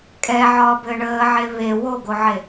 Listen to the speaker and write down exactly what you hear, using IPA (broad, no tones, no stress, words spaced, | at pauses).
kʼɛʕɒːbɘː ɳəːʕe βe woɡoʕe